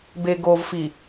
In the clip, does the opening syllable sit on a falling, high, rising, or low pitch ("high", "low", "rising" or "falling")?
low